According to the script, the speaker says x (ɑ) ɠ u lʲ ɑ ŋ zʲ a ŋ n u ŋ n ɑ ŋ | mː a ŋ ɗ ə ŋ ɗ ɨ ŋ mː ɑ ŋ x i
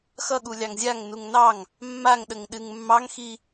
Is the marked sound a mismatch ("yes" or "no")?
yes